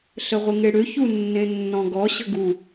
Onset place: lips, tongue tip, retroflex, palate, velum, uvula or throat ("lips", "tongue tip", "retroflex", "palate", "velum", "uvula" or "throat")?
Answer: tongue tip